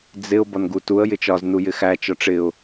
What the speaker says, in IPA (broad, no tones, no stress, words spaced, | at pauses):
d͡zɪʊ̯ bɒnɡutuə̯ jɪt͡ʃɒz nujɪxæ t͡ʃɒʈ͡ʂɪʊ̯